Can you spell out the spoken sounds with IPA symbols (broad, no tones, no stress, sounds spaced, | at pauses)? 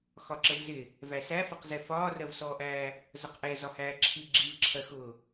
x ɒ ǁ ə v z ɪ | v æ s æ f ʌ q z ɛ f ɒː r ɜ v s ɔː ʔ æː | z ʌ q ʔ ɛ z ɒ h æː ǁʰ i ɡ͡ǁ i v ǁʰ ɜ x ʊː